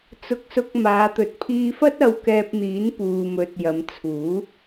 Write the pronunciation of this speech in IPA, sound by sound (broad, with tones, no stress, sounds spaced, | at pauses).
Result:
t͡s ʊ˧ k̚ s ʊ˧ k̚ m aː˨˧ t̪ ɵ˨ t̚ pʰ iː˧ f ɐ˥ t̚ ɐ˧ w k ɛː˧ p̚ n̪ iː˨˥ n p uː˨ m ɵ˨ t̚ j ɐ˨˧ m t͡sʰ uː˨˥